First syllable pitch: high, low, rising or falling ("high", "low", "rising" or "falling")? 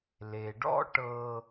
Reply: low